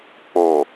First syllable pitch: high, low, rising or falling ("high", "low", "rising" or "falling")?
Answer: low